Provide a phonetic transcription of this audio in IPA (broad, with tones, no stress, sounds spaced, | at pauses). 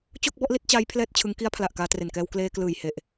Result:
t͡ɕ o˥˩ k̚ b ɔ˥˩ ʔ l i˥˩ t̚ t͡ɕ aː˦˥ j pʰ l ɛː˥˩ t̚ t͡ɕʰ ɯ˦˥ ŋ k i˦˥ a̯ pʰ l a˨˩ ʔ k aː˧ t r e˨˩ n k ɛː˧ w k l eː˧ k l ɯː˨˩ j h e˨˩ ʔ